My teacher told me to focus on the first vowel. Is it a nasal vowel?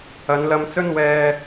no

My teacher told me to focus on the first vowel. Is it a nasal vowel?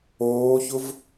no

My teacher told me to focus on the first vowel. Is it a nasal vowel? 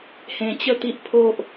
yes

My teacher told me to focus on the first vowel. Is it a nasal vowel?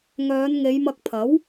no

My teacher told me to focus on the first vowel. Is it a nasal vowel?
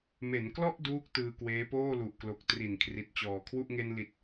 no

